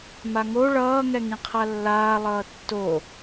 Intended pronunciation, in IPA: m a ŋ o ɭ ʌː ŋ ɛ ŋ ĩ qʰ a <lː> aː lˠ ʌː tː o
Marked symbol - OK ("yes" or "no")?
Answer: yes